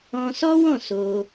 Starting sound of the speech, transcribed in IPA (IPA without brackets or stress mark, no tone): ɔ̃